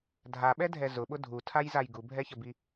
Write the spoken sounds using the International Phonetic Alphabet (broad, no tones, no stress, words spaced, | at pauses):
dʱaɓɛdʱɛ zʊɓʊ dʱutʰajzaj ɡubʱɛçəbi